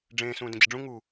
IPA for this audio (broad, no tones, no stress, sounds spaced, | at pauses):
ɖ͡ʐ ẽː s ũː d ə̃ d͡ʑ ə ɖ͡ʐ ũ ŋ u